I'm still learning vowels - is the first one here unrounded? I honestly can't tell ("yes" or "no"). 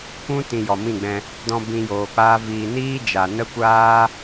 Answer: no